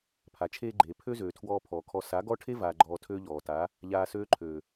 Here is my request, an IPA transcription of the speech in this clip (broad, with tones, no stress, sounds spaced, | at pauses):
pʰ a˨ t͡ʃʰ eː˧ ɡ͡ǃ eː˨ pʰ ø˦ z øː˨ tʰ w ɔː˧ pʰ ɔː˨ kʰ ɔ˧ s a˨˦ ɡ ɔ˦ ʈʰ e˦ v aː˨ ɡ͡ǃ ɔː˧ tʰ øː˦ ʎ ɔː˨ t a˨˦ | ʎ aː˧ s øː˦ ǃʰ øː˨